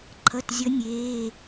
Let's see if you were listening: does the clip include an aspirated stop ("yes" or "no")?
yes